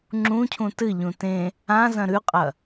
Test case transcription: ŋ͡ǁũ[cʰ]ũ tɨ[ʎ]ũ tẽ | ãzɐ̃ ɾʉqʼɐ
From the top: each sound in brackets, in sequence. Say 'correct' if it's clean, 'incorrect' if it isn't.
correct, correct

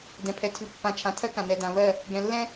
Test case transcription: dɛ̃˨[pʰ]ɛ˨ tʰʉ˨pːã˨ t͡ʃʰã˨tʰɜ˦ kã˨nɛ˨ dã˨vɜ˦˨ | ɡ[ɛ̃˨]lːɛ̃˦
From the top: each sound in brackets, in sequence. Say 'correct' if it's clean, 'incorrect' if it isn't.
correct, correct

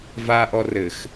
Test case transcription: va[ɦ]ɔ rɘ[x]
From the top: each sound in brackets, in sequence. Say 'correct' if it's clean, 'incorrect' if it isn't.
incorrect: ʔ, correct

